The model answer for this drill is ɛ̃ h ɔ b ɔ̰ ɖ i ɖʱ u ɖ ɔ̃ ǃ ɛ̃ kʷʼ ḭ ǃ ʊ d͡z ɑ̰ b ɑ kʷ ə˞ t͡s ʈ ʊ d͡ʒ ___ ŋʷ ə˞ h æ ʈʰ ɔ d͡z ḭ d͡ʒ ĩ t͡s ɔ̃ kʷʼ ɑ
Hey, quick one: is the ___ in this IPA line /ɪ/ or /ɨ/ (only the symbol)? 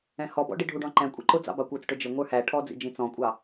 ɪ